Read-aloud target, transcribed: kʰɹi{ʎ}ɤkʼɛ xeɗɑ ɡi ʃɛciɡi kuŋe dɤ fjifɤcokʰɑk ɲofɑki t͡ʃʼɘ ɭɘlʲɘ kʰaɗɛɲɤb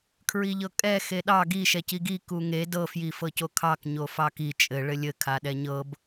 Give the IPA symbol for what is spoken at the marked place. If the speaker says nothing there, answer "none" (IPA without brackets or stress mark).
ʎ